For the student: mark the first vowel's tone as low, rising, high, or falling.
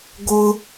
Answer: low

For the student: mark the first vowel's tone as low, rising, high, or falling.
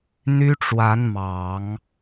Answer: high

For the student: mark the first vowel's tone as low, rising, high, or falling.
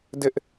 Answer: high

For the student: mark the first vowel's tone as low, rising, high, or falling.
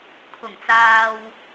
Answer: low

